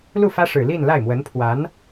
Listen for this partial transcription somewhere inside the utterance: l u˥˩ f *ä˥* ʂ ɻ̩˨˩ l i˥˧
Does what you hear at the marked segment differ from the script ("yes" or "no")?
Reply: no